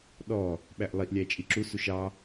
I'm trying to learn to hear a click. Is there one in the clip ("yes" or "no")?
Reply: yes